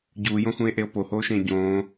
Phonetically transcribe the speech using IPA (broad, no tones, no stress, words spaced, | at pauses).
ɟuːjõxũe̯ʔeo̯ pohoːʃẽː ɟõː